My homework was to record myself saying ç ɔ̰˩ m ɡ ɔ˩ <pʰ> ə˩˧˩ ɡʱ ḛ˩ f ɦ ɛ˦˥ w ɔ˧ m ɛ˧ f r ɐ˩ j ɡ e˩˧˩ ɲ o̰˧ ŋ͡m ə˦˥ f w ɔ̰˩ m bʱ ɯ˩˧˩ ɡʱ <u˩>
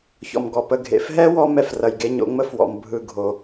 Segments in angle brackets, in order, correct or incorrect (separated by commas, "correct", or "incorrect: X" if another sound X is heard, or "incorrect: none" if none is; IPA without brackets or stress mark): incorrect: p, incorrect: o˩